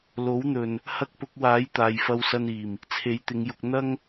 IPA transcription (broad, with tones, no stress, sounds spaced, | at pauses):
l o˨˥ w n̪ ɵ˨ n | h ɐ˥ k̚ p ʊ˨˥ k̚ w aː˨˥ j t̪ aː˨ j f ɐ˧ w s ɐ˧ n iː˨˩ m | t͡sʰ e˨˥ j t̪ ɪ˨˧ ŋ j ʊ˧ k̚ n̪ ɐ˥ ŋ